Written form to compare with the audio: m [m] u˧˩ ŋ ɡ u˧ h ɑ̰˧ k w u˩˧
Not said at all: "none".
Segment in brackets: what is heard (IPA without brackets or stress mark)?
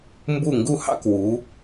b